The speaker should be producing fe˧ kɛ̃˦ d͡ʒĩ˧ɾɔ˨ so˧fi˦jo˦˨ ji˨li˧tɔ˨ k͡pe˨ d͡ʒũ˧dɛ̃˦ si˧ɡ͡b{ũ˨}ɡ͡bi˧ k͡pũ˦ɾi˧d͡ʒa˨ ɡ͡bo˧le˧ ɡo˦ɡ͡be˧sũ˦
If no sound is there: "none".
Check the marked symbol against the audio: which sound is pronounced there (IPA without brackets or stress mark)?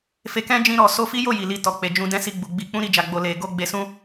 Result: u˨